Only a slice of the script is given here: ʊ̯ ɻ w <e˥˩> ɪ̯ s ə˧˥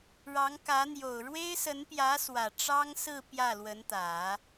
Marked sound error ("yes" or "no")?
yes